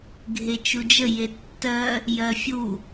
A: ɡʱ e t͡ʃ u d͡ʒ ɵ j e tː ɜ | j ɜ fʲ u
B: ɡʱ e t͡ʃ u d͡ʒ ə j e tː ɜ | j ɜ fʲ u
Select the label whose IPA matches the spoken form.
B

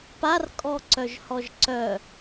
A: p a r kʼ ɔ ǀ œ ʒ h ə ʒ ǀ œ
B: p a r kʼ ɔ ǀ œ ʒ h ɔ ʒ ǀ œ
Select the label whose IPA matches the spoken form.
B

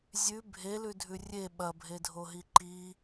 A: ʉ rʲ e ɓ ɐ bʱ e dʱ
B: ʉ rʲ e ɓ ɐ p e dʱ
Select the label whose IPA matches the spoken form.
A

